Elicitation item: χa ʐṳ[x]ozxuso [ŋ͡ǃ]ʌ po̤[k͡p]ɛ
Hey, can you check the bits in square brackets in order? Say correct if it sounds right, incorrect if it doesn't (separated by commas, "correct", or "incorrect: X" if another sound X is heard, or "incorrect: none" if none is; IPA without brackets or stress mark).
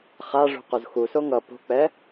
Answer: incorrect: q, incorrect: ŋ, correct